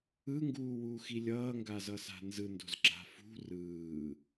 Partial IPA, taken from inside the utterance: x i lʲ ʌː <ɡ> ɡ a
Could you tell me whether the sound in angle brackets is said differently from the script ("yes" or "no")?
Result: yes